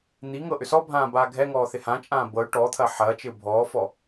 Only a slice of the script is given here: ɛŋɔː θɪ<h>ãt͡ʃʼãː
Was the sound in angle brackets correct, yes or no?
yes